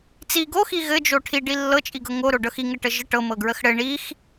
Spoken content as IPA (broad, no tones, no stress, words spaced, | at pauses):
t͡si ɡoxi ɣɘd͡ʒo ʈʰiɖi lːɤt͡ʃʼiɡɤ ŋoɾoɖɤx iŋɘʈə ʒə ʈɤmɤɡɹəx ɽɘ ɳix